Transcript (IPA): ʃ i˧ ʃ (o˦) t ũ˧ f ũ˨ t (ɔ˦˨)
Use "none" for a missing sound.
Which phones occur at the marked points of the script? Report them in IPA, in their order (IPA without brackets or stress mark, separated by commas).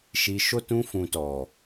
o˦, ɔ˨